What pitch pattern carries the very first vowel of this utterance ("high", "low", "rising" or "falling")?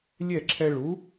falling